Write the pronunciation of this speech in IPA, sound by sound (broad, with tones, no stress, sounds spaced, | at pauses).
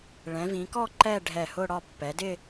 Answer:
ɭ ɛ̃˩˧ v ĩ˩˧ k ɔ˥˧ ǃ ɛ˥˧ ɖʱ ɛ˧˩ h ʊ˥˧ ɽ ɒ˥˧ pː ɛ˩˧ d ɪ˥˧